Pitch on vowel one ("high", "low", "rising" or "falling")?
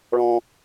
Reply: high